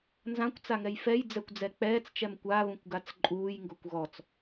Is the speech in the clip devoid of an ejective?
no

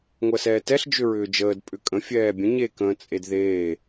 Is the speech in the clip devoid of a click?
yes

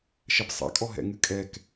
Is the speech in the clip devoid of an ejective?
no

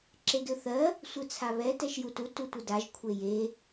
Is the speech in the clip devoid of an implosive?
yes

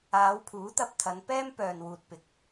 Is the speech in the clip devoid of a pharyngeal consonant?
yes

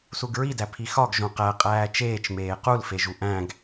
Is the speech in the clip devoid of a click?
yes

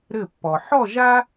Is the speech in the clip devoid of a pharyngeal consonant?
no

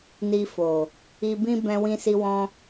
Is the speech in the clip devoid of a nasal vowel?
no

